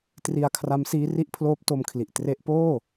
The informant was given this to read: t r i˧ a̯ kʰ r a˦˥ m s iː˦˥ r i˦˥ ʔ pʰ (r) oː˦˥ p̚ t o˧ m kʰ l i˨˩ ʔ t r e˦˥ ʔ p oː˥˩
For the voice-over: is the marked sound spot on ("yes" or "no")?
no